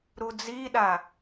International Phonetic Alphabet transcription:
ɾud͡ziɗa

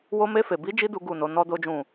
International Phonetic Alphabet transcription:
wo˧me˧fe˨ bi˨˦d͡ʒi˧ du˦ɡu˦˨no˨˦ nɔ˦do˦d͡ʒũ˦˨

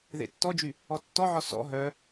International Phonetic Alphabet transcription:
ðḛtːɔd͡ʒy | ɔtːɔʕɔ sɔ̰ ɦœ

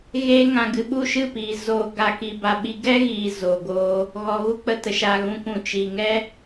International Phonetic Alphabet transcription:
ɣeː˧ ŋã˨ɡɨ˨ ɓu˦˨ʃɨ˦˨piː˨ zoː˨ɡa˨ ki˨ba˨ ɓi˧ ɡɛ˦ɣiː˨ zoː˨ɡoː˧ | ɣɔ˨ɣu˧k͡pə˨tə˨ ʃa˨ɣũ˨ kũ˨ t͡ʃi˨ŋɛ˦

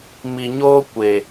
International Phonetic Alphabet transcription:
mi˨ɲoː˦ kʷe˨

